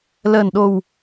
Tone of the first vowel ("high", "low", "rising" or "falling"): low